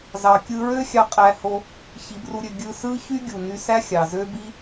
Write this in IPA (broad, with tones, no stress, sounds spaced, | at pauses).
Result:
z ɑ˨ kʲ ɯ˧ ɹ ø˦ xʲ ɑ˦ qʼ æ˧ h o˧ | ç i˨˦ b r u˧ ɾʲ ø˧ ɡʲ ɯ˧ s ɯ˦ ç y˦ ɡʲ u˨ n y˧ s æ˦ xʲ ɑ˨ z ø˦ b i˦